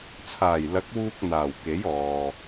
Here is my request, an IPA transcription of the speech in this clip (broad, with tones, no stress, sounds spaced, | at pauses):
t͡sʰ aː˨˩ j l ɐ˨˥ k̚ w uː˧ k̚ n̪ aː˨˩ w k e˨˥ j ɔː˨